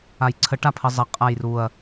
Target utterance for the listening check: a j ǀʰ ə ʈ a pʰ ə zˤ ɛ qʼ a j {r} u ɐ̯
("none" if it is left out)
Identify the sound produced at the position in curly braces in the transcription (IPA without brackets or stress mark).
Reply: r